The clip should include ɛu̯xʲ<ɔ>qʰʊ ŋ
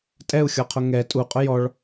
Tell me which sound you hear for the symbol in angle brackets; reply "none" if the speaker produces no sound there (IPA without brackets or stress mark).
ɔ